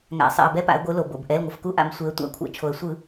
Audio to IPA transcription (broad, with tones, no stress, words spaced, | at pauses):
ŋa̰˩sˤɛ̰˩ə̯ bɛ˨˥pa̰˩˧ə̯ ɡʷɯ˩˧ lo˩ bo̰˩bʔɛ˩˧˩l ŋʷʌ˩fku˨˥ʔa̰˩˧m sʷe˩˧ə̯tʷa̰˧˩˧kʷʰɛ̰˩˧ t͡ʃʰo˩ə̯sʷɯ˧˩˧